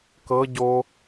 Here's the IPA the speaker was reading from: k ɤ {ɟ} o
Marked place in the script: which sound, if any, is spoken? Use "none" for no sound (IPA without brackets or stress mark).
ɟ